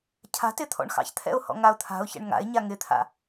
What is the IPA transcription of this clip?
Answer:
cʰ a̤ t ɪ t̪ʰ ɔ̰ ɳ x ɑ̰ ç t̪ʰ ɛ̰ ʊ̯ h ɔ̰ ŋ a ʊ̯ t̪ʰ a̤ ʊ̯ ç ɛ̰ ɳ ŋ a̰ ɪ̯ ɲ a ŋ ɪ t̪ʰ a̰

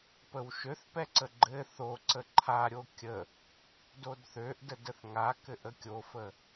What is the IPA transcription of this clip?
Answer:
p ə w ʃ ø θ p ɛ ǀ ə ɡ͡ǃ ɘ θ o ǀ ə ǃʰ a ɾʲ o kʲ ə | d o d θ ø ʔ d ə d ə θ ŋ a k ɘ ʔ ə kʲ o f ə

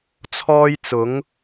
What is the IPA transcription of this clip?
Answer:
t͡sʰ ɔː˥ j t͡s ʊ˨˥ ŋ

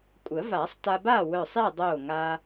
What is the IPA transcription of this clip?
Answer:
kʷʼ ə˨˩˦ v a˨˩˦ sˤ t a˧ b a˥˨ w œ˧˩ sˤ e˥˨ dˤ o˧˩ ŋ a˧

